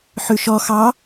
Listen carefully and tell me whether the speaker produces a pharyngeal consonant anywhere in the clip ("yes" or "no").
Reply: yes